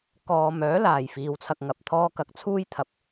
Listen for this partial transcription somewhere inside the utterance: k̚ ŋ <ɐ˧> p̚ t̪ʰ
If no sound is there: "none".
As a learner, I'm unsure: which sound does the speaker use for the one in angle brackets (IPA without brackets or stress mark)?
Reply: ɐ˨˥